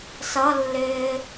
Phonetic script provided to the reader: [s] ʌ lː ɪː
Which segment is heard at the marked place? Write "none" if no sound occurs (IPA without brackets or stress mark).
s